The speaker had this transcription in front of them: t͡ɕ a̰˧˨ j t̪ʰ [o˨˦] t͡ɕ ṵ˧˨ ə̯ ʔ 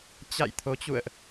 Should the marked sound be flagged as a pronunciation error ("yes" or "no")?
no